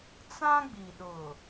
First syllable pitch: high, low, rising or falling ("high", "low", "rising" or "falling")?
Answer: high